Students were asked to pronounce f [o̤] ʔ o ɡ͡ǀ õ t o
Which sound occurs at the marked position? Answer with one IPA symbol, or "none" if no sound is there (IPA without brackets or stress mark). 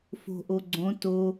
o̤